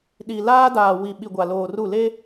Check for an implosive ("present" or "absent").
present